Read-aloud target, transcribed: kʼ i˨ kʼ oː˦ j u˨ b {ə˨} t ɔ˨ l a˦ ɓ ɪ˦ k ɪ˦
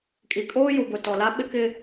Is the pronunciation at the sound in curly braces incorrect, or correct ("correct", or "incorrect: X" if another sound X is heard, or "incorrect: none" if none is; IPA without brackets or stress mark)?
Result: incorrect: ʊ˨